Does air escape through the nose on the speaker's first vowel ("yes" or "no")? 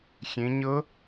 yes